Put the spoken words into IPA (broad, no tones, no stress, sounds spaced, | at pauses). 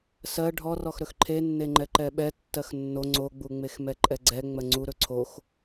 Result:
s ɜ ɖʱ ɔ r ɔ x ɾ ɵ x ǃʰ e nː e ŋ͡ǃ ɛ ǃ ɛ ɓ ɛ tː ɜ x nː o ŋ͡ǀ o ɡ͡b u ŋ͡m e x m ɛ ǃʼ ɛ ɡ͡ǀ ɛ ŋ͡m ɜ ŋ͡ǀ u ɾ ɵ ǀʰ o x